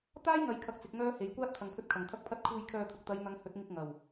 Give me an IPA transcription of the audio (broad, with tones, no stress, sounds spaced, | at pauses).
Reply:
t̪ aː˥ j ŋ ɐ˨˧ j kʰ ɐ˧ k̚ t͡s ɪ˨˥ k̚ ŋ œː˥ h e˨˧ j kʷ aː˥ t̚ pʰ ɐ˨ ŋ pʰ ɵ˧ t̚ kʰ ɐ˨˩ ŋ t̪ʰ ɐ˧ k̚ pʰ ɐ˧ t̚ kʰ uː˧ j kʰ œː˧ t̪ʰ ʊ˨ k̚ t̪ ɐ˨˧ j n̪ ɐ˨˧ ŋ h ɵ˨˥ t̚ ŋ ɪ˧ k̚ ŋ ɐ˨˩ w